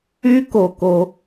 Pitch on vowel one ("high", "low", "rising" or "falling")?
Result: high